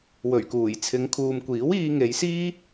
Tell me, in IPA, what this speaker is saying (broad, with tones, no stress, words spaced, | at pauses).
wɵ˨˩ɥkuː˨˩j t͡sʰɪ˨˧ŋ kʰuː˨mkʷiː˨˥w iː˧ŋe˨˧jsiː˥